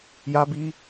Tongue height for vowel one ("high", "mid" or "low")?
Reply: low